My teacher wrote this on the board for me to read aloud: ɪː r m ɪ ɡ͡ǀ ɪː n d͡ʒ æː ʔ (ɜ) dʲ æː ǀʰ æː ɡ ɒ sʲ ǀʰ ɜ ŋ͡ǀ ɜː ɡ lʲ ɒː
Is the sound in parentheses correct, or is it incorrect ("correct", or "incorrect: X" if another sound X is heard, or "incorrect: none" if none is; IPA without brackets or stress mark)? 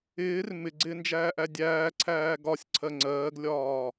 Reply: incorrect: æ